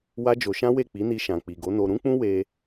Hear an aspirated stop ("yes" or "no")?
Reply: no